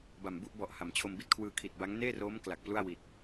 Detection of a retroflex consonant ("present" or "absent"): absent